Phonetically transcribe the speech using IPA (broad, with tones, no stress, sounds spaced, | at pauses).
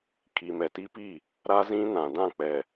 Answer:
kʰ i˨ m ɛ˨ t i˦ p i˦˨ | ɾ a˦ z ĩ˦ n ã˨ d ã˦˨ k͡p ɛ˨